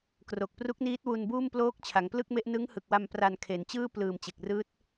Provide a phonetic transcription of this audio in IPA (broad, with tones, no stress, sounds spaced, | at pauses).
k r o˨˩ k̚ p r u˦˥ k̚ n iː˦˥ t̚ w u˧ n b uː˥˩ m p l oː˦˥ k̚ t͡ɕʰ a˩˦ ŋ p l ɯ˥˩ k̚ m e˦˥ ʔ n ɯ˦˥ ŋ h ɯ˨˩ k̚ w a˧ m p r a˧ n kʰ e˩˦ n t͡ɕ ɯː˥˩ p l ɯː˨˩ m t͡ɕ e˨˩ k̚ r ɯː˦˥ t̚